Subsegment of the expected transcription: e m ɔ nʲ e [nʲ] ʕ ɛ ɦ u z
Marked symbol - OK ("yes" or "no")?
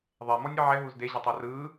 no